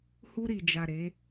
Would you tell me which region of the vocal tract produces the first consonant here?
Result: throat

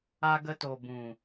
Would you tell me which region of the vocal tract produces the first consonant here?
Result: velum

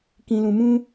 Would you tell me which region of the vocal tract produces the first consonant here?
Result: velum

